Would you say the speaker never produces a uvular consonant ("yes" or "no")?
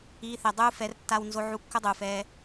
yes